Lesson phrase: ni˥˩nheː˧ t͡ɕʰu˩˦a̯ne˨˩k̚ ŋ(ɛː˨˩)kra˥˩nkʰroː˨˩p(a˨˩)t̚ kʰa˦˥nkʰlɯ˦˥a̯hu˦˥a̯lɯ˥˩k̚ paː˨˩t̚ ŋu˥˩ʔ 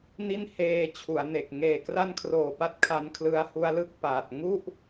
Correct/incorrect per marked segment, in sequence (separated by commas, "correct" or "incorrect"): incorrect, incorrect